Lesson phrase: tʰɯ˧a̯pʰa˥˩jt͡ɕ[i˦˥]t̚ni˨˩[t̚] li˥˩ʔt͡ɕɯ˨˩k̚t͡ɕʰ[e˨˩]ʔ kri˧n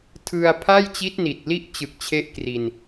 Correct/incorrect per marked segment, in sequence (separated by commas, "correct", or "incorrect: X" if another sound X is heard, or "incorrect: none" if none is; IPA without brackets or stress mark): correct, correct, incorrect: e˦˥